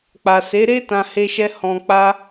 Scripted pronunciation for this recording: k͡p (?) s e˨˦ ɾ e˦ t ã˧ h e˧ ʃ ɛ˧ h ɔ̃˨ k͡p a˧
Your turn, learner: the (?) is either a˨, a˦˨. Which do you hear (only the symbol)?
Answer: a˨